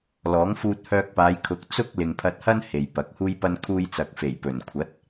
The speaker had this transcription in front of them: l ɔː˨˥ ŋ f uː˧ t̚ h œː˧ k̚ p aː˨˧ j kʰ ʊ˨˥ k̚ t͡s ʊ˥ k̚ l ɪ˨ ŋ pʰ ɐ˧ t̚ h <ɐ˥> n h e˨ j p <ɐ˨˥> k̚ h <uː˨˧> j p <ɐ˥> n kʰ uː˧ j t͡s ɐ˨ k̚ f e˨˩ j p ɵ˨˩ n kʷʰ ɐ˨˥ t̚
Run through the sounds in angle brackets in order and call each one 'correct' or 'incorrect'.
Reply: correct, correct, incorrect: uː˥, incorrect: ɐ˧

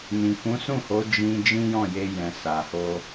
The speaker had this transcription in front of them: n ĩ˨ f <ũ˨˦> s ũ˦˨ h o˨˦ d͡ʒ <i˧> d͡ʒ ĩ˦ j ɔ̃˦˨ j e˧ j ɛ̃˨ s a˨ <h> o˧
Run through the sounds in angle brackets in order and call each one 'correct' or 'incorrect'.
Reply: correct, incorrect: ĩ˧, correct

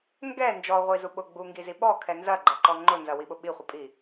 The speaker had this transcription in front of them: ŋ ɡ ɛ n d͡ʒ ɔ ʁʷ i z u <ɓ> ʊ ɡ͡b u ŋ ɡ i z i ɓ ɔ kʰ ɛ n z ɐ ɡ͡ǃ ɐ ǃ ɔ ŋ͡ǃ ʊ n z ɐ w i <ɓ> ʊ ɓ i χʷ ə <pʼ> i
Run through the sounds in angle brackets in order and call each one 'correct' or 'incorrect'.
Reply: correct, correct, correct

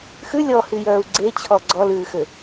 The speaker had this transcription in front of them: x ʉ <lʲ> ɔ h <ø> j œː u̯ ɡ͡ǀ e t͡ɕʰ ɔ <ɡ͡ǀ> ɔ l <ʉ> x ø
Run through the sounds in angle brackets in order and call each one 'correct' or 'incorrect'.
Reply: correct, incorrect: y, correct, incorrect: ʉː

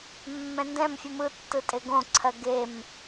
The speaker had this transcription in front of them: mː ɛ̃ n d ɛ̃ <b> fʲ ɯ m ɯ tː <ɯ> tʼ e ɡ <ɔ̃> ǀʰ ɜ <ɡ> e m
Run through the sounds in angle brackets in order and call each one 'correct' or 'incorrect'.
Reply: incorrect: m, correct, incorrect: õ, correct

